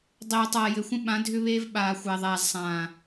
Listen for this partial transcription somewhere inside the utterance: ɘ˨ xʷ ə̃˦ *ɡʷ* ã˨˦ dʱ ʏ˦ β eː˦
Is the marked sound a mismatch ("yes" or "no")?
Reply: yes